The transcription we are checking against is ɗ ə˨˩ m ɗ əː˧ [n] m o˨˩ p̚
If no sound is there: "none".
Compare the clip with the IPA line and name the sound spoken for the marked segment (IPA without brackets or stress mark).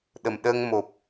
ŋ